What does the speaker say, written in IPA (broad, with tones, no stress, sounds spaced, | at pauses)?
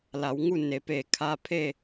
l a˩˧ w ŋ u˥˨ n e˩˧ p eː˧˩ kʰ a˧ pʰ e˥˨